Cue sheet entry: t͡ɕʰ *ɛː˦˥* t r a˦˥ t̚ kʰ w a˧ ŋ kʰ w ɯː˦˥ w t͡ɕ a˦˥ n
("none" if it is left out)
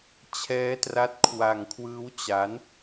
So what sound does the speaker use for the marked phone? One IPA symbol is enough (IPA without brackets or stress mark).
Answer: ɛː˦˥